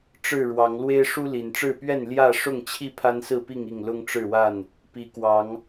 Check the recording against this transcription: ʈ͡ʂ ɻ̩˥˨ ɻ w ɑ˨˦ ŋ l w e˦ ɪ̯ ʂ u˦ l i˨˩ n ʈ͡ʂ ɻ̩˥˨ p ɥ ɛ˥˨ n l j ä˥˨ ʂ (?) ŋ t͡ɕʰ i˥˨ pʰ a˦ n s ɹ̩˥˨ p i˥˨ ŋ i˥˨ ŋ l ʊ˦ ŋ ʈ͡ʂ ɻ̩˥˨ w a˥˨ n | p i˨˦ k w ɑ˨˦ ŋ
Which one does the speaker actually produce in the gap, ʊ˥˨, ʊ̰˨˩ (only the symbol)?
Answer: ʊ˥˨